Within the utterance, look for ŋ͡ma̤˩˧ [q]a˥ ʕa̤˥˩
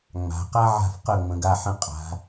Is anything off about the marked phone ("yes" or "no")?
no